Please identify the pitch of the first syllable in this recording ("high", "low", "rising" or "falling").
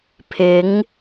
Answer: rising